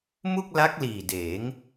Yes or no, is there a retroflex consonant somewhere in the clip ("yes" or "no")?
no